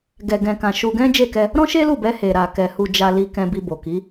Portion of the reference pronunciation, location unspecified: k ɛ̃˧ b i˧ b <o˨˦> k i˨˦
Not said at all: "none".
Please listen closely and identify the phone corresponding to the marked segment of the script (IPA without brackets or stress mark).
o˨